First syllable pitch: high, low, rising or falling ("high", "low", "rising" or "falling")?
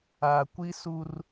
low